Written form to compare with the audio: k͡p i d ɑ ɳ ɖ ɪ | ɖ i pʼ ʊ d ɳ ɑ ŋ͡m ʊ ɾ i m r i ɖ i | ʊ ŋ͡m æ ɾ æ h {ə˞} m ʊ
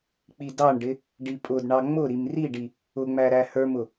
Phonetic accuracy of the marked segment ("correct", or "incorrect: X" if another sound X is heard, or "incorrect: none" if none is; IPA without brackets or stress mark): correct